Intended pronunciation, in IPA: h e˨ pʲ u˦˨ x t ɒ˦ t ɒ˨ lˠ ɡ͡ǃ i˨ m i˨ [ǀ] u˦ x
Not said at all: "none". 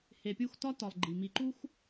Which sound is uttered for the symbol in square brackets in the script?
ǃ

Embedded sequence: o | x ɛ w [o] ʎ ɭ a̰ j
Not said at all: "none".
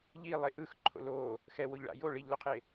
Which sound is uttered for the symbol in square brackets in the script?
o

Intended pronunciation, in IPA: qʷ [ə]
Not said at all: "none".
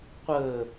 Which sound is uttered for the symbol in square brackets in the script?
ə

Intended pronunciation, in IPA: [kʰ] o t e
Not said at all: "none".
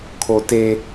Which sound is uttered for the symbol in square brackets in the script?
kʰ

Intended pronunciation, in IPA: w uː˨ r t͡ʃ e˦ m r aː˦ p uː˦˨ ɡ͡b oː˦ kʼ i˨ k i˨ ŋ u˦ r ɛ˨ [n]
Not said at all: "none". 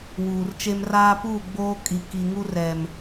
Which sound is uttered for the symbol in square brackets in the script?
m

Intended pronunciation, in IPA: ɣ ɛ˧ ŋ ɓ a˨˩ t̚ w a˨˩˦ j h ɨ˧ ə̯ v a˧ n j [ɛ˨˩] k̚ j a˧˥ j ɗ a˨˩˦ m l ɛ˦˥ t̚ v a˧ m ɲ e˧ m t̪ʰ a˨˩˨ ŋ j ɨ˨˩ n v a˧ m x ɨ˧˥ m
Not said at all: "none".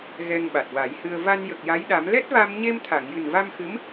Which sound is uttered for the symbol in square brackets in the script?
ə˨˩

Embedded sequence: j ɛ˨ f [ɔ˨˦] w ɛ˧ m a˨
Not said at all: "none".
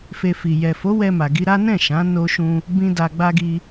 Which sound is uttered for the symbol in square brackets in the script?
o˨˦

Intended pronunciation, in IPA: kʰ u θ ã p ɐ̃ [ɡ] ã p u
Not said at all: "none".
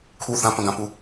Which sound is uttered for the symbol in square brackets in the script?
ɡ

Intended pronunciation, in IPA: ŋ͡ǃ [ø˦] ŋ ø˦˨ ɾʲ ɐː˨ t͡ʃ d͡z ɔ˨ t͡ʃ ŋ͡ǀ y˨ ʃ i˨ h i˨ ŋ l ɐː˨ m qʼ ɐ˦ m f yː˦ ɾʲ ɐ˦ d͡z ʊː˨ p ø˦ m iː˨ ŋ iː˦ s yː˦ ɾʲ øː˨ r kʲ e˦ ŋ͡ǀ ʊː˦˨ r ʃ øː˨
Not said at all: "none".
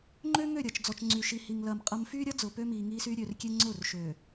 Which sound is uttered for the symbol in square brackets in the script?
ø˦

